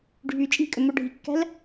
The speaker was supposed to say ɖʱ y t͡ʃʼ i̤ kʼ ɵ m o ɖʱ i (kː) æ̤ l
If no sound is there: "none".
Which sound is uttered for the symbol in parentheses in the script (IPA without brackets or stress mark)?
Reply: kː